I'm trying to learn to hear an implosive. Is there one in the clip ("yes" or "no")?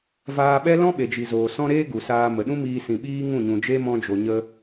yes